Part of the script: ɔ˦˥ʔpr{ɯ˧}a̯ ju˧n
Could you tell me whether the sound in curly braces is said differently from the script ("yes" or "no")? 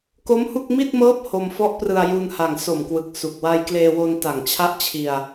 no